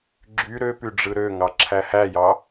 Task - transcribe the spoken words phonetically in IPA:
ɡ͡ǁy ɾøpy ɖ͡ʐɯɾøŋɑ ǁʰæhæjɑ

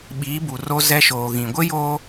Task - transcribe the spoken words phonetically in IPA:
ɓiː˨˦bu˨ro˦ zɛ˦ʃoː˨ɣĩ˨ ɡʷɪ˦joː˦

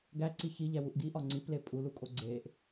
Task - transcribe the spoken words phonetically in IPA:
ɡæǀi çiʎæwuʔ ɡiʔɒ ŋ͡ǀiple pʼulukʼo ɡ͡ǀeʔ

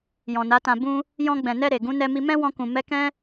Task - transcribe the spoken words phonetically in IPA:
jɔ̃˨na˨˦tã˧ bũ˦ | jɔ̃˧ɡ͡bɛ̃˨nɛ˧ ɾe˨ ɡũ˨˦nɛ˧mi˧ mɛ̃˦wɔ̃˧kũ˨ mɛ˧kɛ̃˦

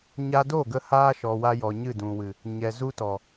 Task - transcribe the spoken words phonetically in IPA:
ɲa˧do˦˨ɡə˧ haː˦ʃɔ˨wa˧ jɔ˨ɲɨ˦˨dũ˨wɨ˨ | ɲɛ˨zu˦tɔ˨

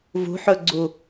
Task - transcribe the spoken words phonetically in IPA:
vṳħɵɡ͡ǀu

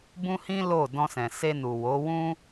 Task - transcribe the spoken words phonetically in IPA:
bũ˦hĩ˦ lo˦˨ dɔ̃˧sɛ̃˨se˧nu˨ wo˨˦ wũ˦

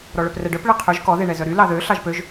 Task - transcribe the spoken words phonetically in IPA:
ɾɔɭœprɛɖœp ɭeqʰøʒ kɔ ðeɳɛzœɾy lɑðø ɬɑʒpøʒ

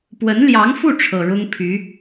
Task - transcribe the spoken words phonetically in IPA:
pwə˧˥nljɑ˧˥ŋfu˥˩ ʈ͡ʂʰɤ˨˩ɻʊ˥ŋ pʰy˧˥

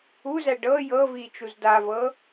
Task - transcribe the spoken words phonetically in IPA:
uzæ ɖɤ jɤvi t͡ʃuzdavɤ

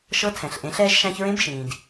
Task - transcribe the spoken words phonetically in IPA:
ʃɤ˧˥ tʰɛ̃˩ɬʔẽ˩˧ɬɛː˧ʒ ʃæ̃˧çɹẽ˧˥bʃĩː˩d

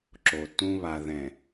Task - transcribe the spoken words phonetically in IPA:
ǁo˨tũ˦ βa˨ðɛ̃˨

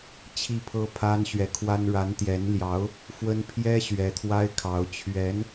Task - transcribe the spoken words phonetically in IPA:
t͡ɕʰi˥˩pʰɤ˥pʰa˥nɕɥɛ˧˥ kʰwa˥n ɻa˧˥nt̪jɛ˧˥nljɑ˧˥ʊ̯ | fwə˥n pʰjɛ˥ ɕɥɛ˧˥t̪ʰwa˥ɪ̯kʰɑ˧˥ʊ̯ t͡ɕʰɥɛ˧˥n

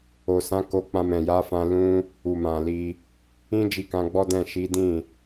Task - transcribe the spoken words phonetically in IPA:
o˨sã˨˦ko˧k͡pã˧ mɛ̃˨ja˨˦fã˧ lũ˦ | u˨mã˨li˧ | ĩ˦ d͡ʒi˧kã˧ɡ͡bɔ˦dɛ̃˦˨ ʃi˨˦ dĩ˦˨

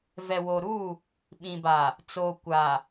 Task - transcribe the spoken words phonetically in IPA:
vɛ˨wo˨ɾu˦˨ | ɓĩ˨ba˨ | t͡soː˨kʷa˨

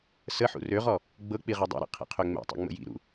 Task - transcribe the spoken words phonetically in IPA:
səħṵ røʁɔ | ɡ͡bɤk͡pi ʁɛdˤɛ̰ɾḭ qʰḭqʰøŋ͡mɛ̰tˤḭ ŋ͡mə̰jḭɾṵ

